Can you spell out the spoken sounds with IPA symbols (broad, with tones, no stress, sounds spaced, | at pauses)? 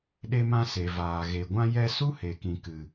ɗ e˧ m ã˧ s e˨ v aː˨ ɣ e˨ ɡʷ ã˧ j ɛ˧ s u˦ h e˨ k ĩ˨ k ɨ˨